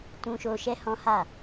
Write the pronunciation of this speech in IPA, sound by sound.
t ũ˧ ʃ o˧ ʃ ɛ˦ h ɔ̃˦ h a˦˨

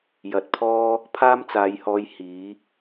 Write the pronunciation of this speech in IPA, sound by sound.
j ɐ˨ t̚ pʰ ɔː˥ | pʰ aː˥ m t͡s aː˨˧ j h ɔː˧ j h iː˨˥

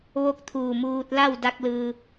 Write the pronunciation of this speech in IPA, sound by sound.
ʋ o˧˥ k̚ t̪ʰ uː˧˩ m uː˧ t̚ l a˥˨ w d a˧ k̚ l ɯː˧

